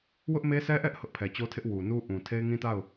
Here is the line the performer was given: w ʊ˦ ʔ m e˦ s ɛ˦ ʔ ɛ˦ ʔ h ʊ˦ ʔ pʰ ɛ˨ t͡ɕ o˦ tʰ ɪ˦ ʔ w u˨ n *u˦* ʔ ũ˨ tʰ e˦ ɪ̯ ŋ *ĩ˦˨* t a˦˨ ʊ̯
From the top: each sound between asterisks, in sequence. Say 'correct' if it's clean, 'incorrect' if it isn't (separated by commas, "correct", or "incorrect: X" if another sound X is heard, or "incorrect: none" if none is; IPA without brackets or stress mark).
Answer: correct, incorrect: ĩ˦